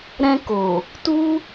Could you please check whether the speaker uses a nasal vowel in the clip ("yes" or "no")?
yes